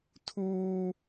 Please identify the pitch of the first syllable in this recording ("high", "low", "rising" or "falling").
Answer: high